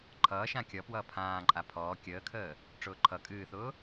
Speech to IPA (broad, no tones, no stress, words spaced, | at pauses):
ǃʰʌːʃã kʲʌpwʌː pʰãː ǃʼapʰɔː kʲəːkʰəː | ʈ͡ʂʊːǃʰʌ kʼɨːθʊː